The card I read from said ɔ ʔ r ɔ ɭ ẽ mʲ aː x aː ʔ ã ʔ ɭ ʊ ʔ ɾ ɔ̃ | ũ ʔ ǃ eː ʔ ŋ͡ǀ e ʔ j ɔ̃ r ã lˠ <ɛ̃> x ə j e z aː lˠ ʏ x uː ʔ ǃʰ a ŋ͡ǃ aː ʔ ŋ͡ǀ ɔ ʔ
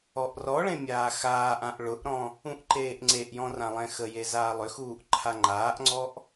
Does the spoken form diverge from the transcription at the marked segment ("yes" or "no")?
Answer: no